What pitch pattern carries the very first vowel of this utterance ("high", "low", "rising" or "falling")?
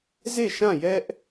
falling